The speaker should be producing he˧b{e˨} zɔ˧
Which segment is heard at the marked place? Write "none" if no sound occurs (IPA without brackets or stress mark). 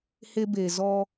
e˨